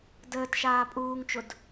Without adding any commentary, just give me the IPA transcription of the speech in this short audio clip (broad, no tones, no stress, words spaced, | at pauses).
dəːtʃaː pʼuːŋt͡ʃʊd